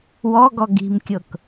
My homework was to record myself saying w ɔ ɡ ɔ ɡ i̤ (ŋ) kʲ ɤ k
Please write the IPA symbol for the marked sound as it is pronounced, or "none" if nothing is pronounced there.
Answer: m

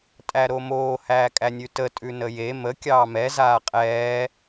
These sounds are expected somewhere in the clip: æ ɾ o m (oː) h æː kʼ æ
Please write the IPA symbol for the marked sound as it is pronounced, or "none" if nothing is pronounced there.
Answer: oː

